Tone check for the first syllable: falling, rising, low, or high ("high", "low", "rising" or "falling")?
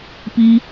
high